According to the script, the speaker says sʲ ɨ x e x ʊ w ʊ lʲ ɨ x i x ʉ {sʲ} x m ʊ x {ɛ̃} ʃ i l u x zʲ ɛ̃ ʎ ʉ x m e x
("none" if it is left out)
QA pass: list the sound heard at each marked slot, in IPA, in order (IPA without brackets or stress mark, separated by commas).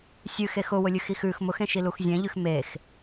none, ẽ